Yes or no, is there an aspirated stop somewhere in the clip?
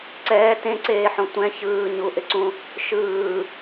no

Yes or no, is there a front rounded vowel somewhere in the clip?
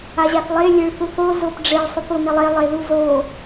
no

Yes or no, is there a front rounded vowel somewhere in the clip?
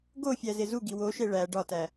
no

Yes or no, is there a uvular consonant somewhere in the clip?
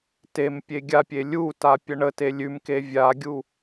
no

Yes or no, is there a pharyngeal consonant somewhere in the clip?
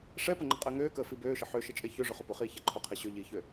yes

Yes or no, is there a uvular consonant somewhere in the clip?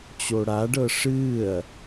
no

